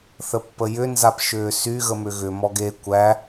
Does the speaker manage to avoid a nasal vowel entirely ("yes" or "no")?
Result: yes